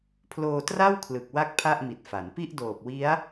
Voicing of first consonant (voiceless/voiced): voiceless